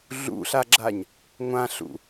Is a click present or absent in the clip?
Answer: present